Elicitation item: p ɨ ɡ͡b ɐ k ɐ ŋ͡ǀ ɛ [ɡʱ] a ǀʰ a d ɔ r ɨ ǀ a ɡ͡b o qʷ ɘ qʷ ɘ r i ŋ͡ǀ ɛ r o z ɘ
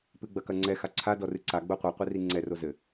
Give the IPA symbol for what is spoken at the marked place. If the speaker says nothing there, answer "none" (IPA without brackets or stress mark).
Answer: x